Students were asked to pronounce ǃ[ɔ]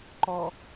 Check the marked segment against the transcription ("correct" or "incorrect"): correct